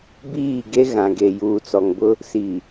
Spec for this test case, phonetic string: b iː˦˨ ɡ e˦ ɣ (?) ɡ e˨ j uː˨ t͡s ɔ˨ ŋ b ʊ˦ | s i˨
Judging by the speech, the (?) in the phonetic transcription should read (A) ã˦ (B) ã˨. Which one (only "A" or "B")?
B